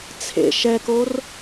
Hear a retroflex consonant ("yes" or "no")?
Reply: no